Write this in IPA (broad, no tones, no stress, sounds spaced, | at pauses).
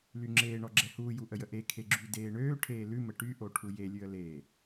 l y ŋ͡ǁ eː ɳ ɔ ɡ͡ǁ ɛ h uː j u ʔ ə j ə ʔ e kʰ e ɡ͡ǁ y d eː ɳ øː ʈʰ eː l ʉ m ə ʈ y ʔ o ʈʰ u j e lʲ ʉ ə̯ l eː